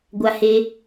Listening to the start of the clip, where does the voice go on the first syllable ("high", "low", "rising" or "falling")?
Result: low